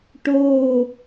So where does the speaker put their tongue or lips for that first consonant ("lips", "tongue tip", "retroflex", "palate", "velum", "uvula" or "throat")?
retroflex